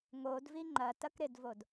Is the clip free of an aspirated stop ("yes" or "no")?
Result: yes